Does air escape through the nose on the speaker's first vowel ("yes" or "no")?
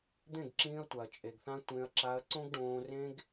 yes